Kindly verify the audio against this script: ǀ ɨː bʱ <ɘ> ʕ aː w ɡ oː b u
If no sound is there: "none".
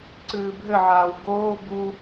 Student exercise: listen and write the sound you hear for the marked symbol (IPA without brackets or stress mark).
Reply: ɘ